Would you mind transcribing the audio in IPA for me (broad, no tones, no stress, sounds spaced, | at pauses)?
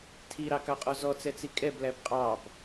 tʰ i ɾ ɑ k ɑ qʼ ɔ z ɔ t͡s ɛ t͡s i kʼ ɛ b l æ b qʼ ɑ b